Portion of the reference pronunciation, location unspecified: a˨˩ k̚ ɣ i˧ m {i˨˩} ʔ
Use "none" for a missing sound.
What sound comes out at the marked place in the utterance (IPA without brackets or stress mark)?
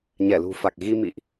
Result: ḭ˧˨